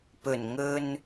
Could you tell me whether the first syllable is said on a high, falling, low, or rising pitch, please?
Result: low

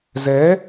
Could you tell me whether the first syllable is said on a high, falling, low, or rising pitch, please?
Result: rising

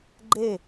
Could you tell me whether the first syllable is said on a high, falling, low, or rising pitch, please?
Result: falling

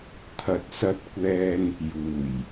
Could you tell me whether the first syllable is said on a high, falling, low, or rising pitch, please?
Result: low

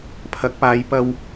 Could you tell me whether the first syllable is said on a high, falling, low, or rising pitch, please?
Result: rising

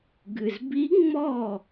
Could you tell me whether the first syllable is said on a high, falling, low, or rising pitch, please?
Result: low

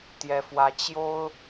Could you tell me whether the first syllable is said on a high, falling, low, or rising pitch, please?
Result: high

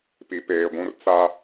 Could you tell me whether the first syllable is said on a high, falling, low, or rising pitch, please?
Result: low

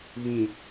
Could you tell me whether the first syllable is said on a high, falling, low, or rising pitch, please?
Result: low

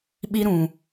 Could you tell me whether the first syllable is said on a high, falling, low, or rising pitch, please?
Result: high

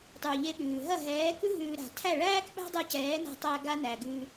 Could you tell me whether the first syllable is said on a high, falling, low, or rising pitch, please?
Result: low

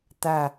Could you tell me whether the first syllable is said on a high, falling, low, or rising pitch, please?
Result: falling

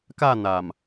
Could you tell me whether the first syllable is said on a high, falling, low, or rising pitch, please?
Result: falling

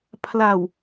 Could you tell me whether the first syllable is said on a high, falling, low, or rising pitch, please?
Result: low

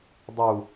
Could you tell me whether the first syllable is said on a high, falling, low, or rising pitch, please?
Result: low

